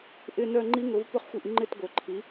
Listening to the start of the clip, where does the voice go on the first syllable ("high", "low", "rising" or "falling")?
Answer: falling